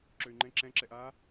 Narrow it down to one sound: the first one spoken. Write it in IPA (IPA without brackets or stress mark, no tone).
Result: ǁ